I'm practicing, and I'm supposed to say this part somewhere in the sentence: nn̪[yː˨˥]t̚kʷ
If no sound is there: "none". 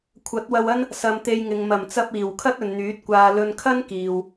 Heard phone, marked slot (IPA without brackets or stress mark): yː˨˥